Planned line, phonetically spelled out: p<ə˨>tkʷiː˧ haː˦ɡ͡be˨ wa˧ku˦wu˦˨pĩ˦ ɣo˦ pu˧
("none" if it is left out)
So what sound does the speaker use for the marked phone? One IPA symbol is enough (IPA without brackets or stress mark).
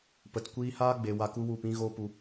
ə˨